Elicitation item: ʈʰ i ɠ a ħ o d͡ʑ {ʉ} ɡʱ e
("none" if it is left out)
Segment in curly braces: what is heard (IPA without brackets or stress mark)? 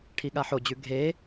ʉ